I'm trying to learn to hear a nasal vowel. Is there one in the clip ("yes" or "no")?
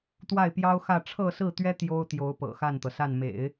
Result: no